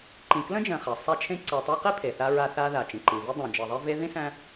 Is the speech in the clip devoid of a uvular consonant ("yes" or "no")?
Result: no